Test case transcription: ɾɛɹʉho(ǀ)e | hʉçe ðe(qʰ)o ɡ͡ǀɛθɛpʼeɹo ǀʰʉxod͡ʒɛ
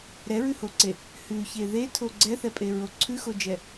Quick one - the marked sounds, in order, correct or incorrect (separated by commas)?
correct, incorrect